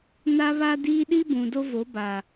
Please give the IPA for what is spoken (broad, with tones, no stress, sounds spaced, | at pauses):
n a˦ β a˦ d iː˦ ɗ i˦ b ũ˨ d o˦ v o˨˦ b a˨